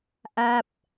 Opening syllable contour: falling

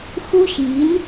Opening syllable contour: high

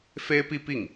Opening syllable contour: high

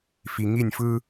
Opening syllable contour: low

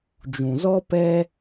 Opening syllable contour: low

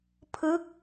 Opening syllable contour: falling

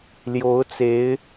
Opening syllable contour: rising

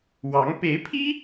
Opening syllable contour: rising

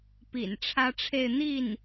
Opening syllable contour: low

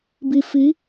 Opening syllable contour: low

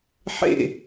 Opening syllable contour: falling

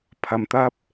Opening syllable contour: low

